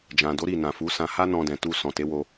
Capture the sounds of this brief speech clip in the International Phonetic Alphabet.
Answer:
d͡ʒ ã˨ d o˨˦ ɾ i˦˨ n ã˨ f u˨˦ s ã˧ h a˦ n ɔ̃˧ d ɛ̃˨ t u˧ s ɔ̃˨ t e˨˦ w o˧

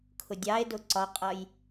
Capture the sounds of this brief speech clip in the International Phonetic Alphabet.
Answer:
kʰ ʊ dʲ ɑ e̯ d ʊ ǀ ɒ qʼ ʌ j

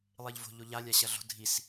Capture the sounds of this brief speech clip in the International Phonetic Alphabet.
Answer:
lˠ i ʎ v o̤ ʎ o ʎ a lʲ a ɕ ɐ ɮ o̤ dʱ i s

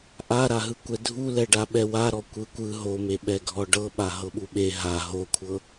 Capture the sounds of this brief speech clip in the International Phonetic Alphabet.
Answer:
ʔ a ɾ a ɦ ɯ kʷ ɛ dʱ u l ɛ ɖ a ɓ ɛ w a ɾ ɔ kʷ ɯ kʷ ɯ ɦ o m e ɓ ɛ ɡʱ ɔ ɖ ɤ ɓ a ɦ ɤ ɓ u ɓ e ɦ a ɦ o kʷʰ ɤ

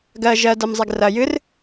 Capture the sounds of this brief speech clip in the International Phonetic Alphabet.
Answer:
ɡ ɜ ʒ ɜ d ɜ m zˤ e ɡ r ɐ j ɨ r

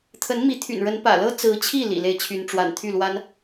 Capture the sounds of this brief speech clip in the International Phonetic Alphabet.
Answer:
t̪ʰ ə˧˥ n m i˧˥ t̪ʰ y̰˨˩ n ɻ ə˧˥ n p ä̰˨˩ l ɤ˥ t͡s ɹ̩˧˥ t͡ɕʰ i˥˩ l ḭ˨˩ l e˥˩ ɪ̯ t͡ɕʰ y˧˥ n ʈ͡ʂ w a̰˨˩ n t̪ʰ y˥˩ l w a˥ n

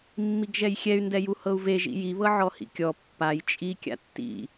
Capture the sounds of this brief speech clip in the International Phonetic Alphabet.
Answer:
mː i ɡ ʒ ɛ j xʲ ɛ y̯ n d ɛ j u h ɤ u̯ v e ʒ ḭ j i β ɤ ʕ ɔ h ḭ kʲ ɔ pː a j t͡ʃʼ i kʲ a̰ tː ḭ

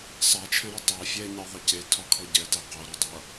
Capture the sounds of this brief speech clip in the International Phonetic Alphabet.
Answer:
sˤ æ t͡ʃʰ ɛ̃ ɾ ɔ tˤ ɑ fʲ ɛ ɲ ɛ ðˤ ʌ c e tʰ ɒ kʰ ɔ ɟ ɛ t ɛ q o ɾ æ dˤ ʌ

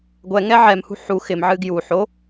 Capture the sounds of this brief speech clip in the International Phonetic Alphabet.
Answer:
ɡʷ ɛ ŋ ɛ ʕ ɛ m h ṳ ħ u x ɪ m ʕ ɨ ɡ j u ħ o

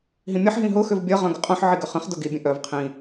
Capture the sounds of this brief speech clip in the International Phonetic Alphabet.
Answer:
ɦ ĩ mʲ ʌ ħ ɦ ĩ ɦ ʊ x ʏ v bʲ ʌ ʁ œ̃ ɡ ə qʼ œ̃ ħ ʕ i ɡ ʏ χ ə̃ χ d ʊ ɡ i bʲ ə̃ ʔ œ v qʰ ĩ

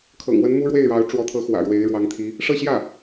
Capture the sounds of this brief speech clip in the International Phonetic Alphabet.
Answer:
kʰ ɤ̰˨˩ ŋ w ə˧˥ n m u˥ ɻ w e˥˩ ɪ̯ ɻ ɑ˧˥ ʊ̯ ʈ͡ʂ w ɔ˧˥ t̪ʰ ɤ˧˥ x w ä̰˨˩ ɻ w e˧˥ ɪ̯ ɻ w ɑ˧˥ ŋ t̪ʰ i˧˥ | ʂ ɤ˥˧ ɕ j ä˥˩

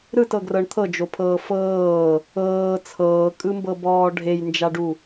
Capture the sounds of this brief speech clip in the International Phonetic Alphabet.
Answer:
ɾ ɯ t ɤ ɡ r ɤ ɳ t̪ʰ ɤ d͡ʒ o pʰ ɤː f ɤː | ɤː t͡sʰ ɤː kʼ ɯ m b ɤ b ɔː ɖʱ e j n d͡ʒ a ɖ u

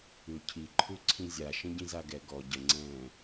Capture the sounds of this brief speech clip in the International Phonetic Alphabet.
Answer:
ʉ cʰ i ǃʰ ʉ ǀʰ ĩ zʲ a ʃ ə̃ ɟ ĩ z a ɡ ɛ ɡ ɔ ɟ ə ŋ͡ǀ ɛ̃ː

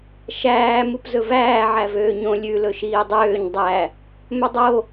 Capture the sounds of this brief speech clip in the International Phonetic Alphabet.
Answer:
ʃ æː m u p z ɵ v æː ʕ æ v øː ɲ õ lʲ ʉ l ɵ ʃ iː dˤ øː ɲ dˤ æ | m ɵ dˤ o

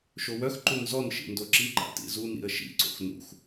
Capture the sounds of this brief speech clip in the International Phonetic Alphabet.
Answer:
ʃ o w œ x ǃ u n z ɔ n ʃ ḭ n d o ǁ i ǃ a̰ t ḭ z u n ḭ ə̯ ʃ ḭ ǀ o̰ x n ṵ x

